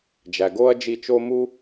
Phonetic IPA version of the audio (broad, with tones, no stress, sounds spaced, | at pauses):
d͡ʒ æ˩ ɡ o˥ ɐ̯ d͡ʒ i˦ t͡ʃ o˥ m u˥